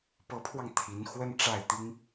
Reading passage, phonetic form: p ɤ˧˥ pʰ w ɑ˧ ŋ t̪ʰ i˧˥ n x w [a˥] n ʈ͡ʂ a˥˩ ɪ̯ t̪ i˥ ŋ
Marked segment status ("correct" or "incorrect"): incorrect